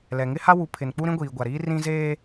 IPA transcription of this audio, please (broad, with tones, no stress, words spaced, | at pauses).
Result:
lɛ˨ŋɪ˦ha˦ wu˨˦pʰɪ˨nk͡pu˦ɾĩ˦ ɡʷiː˨ɡʷa˨ɾiː˦ rĩ˦zeː˦